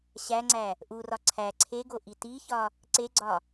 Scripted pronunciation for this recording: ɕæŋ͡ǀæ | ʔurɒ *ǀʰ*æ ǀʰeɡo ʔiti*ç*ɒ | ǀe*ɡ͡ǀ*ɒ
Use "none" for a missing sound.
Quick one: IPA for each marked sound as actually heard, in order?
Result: ǀʰ, ç, ɡ͡ǀ

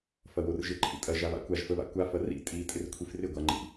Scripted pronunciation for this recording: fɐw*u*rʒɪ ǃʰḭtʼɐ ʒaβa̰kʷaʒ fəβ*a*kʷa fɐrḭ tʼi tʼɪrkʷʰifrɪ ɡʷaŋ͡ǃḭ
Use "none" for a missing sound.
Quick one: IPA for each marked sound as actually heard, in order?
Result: o, a̰

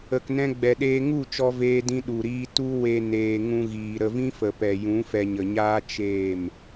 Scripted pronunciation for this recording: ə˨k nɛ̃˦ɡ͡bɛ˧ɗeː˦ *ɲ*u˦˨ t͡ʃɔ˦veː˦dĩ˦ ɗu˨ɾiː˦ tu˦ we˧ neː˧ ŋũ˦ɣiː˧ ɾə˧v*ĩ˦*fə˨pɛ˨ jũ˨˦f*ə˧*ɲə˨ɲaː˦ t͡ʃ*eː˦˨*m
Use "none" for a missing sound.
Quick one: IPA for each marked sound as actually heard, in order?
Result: ŋ, ĩ˦, ɛ˧, eː˦˨

